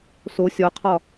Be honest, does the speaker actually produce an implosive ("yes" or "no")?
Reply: no